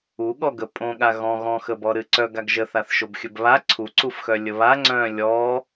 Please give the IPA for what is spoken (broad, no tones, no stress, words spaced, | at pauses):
uɠɔɡə pʼõɠa ɣɔ̃ ɣɔ̃xəbɔ ɾɨǀœɡ aɡʒəθaθ ʃobxʲɵbβa ǀʰuǀufxœ lʲəβa ŋ͡ǀœ̃ lʲɔ